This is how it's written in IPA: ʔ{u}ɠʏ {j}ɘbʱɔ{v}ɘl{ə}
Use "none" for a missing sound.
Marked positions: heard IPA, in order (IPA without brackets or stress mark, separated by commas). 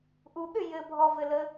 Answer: u, j, v, ə